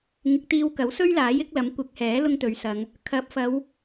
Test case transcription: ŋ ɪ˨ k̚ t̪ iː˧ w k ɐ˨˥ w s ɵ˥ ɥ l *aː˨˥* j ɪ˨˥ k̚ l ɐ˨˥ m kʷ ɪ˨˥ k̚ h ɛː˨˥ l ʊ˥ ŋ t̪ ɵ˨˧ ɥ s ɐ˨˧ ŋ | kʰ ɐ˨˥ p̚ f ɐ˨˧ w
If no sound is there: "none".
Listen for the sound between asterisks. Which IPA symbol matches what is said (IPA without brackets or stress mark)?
aː˨˥